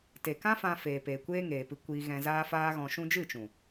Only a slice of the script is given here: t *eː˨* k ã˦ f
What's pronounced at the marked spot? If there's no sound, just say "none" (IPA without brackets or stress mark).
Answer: e˨